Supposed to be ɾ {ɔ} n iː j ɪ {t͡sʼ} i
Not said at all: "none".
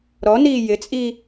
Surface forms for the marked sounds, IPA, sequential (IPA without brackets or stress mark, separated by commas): ɔ, t͡sʼ